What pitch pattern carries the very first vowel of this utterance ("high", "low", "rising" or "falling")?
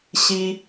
high